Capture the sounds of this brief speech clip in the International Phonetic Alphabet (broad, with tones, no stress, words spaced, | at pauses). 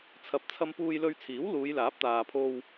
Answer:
t͡sʰɐ˨p̚t͡sʰɐ˧m puː˧jlɵ˧ɥt͡sʰiː˨˥w luː˨˧jlaː˨˥p̚t̪aː˨ pʰo˧w